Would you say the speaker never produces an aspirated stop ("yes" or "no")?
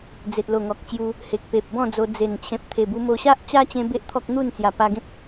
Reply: no